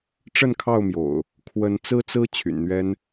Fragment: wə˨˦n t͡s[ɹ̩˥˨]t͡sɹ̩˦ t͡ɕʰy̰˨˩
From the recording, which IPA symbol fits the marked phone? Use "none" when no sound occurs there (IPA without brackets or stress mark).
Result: ɹ̩˦